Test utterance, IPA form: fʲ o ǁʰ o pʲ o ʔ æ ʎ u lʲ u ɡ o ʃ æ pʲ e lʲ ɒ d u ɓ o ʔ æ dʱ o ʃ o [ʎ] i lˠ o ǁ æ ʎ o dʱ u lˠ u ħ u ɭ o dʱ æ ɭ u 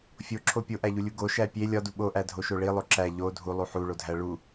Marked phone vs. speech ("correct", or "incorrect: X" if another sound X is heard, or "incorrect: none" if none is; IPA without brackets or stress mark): incorrect: ɭ